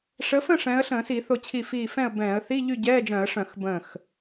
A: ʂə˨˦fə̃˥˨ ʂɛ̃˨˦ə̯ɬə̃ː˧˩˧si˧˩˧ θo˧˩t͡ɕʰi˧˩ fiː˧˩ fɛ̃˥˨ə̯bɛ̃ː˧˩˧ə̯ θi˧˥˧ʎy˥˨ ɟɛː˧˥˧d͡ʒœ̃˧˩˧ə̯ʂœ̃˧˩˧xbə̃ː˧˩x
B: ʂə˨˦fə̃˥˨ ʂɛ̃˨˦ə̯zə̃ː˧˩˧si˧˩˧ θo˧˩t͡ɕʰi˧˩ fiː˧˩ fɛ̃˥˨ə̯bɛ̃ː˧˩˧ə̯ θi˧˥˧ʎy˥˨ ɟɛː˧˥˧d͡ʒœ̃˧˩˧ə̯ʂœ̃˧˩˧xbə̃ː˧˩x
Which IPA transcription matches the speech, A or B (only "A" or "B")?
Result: A